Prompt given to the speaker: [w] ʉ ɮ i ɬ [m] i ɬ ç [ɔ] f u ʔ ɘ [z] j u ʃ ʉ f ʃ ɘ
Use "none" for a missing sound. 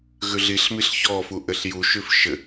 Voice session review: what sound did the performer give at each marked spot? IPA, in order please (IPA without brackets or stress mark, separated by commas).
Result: ɣ, m, ɔ, ɬ